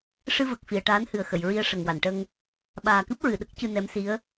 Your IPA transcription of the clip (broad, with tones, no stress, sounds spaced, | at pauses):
ʂ ɨ˧ v ə˨˩ k̚ f i˨˩˨ ə̯ ʈ aː˧˥ n h ɨ˨˩ ə̯ x ə˨˩˨ j ɹ i˧ ə̯ ʂ ə˨˩ ŋ w a˨˩˨ n ʈ ə˧ ŋ | ɓ aː˨˩ k ɨ˦˥ p̚ ɹ ɨ˨˩˨ ɗ ə˦˥ k̚ c ɨ˧ n ɛ˧˥ m s i˧˥ ə̯